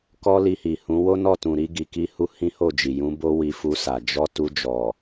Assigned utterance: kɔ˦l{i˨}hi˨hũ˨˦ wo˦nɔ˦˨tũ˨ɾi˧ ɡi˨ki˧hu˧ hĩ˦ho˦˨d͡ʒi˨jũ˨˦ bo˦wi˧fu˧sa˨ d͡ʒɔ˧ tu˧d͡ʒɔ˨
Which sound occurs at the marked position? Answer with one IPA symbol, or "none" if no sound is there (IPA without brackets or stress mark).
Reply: i˧